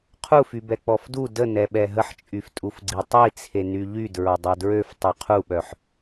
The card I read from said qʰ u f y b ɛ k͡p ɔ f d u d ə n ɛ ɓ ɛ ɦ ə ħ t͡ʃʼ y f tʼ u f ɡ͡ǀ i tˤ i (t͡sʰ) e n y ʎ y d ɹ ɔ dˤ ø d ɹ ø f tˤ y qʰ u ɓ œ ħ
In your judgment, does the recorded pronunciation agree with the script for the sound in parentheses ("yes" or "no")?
yes